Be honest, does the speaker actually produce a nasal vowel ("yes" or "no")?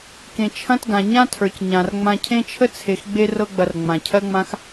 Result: yes